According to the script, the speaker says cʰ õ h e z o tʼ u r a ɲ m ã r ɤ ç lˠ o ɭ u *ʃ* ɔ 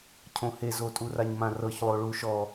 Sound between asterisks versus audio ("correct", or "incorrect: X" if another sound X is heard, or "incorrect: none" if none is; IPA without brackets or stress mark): correct